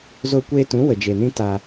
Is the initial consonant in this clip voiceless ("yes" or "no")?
no